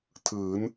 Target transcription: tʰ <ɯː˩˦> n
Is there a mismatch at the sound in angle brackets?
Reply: no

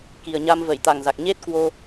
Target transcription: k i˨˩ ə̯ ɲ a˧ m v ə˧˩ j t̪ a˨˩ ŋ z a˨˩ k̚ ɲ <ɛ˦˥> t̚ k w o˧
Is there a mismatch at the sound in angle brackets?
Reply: yes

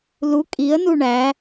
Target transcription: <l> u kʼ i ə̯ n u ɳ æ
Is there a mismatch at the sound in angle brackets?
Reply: no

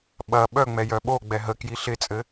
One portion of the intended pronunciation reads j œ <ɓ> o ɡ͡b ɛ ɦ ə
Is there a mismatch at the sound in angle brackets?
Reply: no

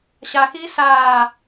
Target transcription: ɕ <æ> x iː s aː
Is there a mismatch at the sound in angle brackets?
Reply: yes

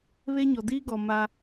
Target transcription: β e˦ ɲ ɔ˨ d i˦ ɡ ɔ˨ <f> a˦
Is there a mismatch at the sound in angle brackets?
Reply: yes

